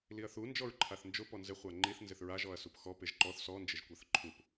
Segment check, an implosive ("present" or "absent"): absent